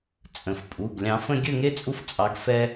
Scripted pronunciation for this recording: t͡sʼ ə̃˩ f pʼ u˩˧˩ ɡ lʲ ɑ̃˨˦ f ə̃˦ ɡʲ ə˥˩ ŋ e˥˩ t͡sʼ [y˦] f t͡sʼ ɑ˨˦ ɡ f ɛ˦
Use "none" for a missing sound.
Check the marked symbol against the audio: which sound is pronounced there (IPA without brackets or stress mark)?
u˦